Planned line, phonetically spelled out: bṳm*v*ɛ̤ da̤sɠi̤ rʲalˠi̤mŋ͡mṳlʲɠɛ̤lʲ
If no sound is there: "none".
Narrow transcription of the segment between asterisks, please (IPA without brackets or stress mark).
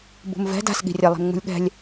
v